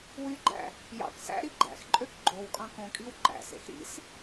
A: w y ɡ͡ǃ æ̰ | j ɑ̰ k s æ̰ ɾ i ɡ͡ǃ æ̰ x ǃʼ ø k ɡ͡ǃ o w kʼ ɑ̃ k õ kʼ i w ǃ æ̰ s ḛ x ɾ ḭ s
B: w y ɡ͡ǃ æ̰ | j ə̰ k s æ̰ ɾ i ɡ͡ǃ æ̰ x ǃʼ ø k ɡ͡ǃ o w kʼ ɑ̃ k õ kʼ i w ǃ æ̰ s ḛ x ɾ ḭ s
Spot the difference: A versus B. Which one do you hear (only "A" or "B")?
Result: A